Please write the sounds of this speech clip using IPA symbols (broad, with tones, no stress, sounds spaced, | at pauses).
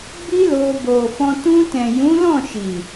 b i˦ l o˧ b o˨ f ɔ̃˧ t ũ˧ t ɛ̃˨ j ũ˨˦ l ɔ̃˦˨ ʃ i˨